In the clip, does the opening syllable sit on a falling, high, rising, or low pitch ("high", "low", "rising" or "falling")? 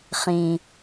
low